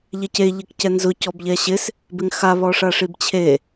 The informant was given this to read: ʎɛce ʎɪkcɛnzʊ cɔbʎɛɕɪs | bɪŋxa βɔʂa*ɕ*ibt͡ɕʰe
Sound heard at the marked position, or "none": ʂ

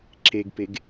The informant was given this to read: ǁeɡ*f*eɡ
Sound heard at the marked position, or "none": p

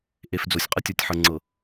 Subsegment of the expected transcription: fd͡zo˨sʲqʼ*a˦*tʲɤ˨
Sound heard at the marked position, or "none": ə˦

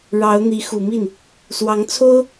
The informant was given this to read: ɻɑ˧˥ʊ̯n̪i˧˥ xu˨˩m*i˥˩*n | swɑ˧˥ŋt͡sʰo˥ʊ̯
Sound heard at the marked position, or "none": i˥˩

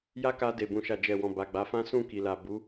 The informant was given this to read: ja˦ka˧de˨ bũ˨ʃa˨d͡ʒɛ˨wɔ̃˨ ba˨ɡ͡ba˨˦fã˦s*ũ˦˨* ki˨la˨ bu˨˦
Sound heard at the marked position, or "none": ũ˦˨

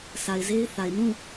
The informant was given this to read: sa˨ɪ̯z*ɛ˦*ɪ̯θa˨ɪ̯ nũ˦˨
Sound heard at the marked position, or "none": e˦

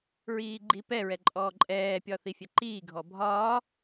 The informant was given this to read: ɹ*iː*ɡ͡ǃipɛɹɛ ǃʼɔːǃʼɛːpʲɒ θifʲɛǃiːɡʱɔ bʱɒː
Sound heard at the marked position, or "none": iː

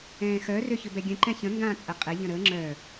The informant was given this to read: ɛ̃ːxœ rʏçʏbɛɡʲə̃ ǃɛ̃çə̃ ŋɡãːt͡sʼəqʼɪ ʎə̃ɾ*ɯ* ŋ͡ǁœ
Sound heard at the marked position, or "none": ə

